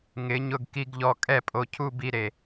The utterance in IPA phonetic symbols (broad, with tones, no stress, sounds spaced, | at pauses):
ŋ ɪ˨˦ ɲ ʊ˧ ɡ k i˦ ɡ ʎ ɔ˧ kʼ ɛ˦ pʼ o˧ cʰ u˦ b i˧ ɾ e˨